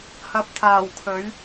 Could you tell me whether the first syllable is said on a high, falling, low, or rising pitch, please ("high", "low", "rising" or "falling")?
low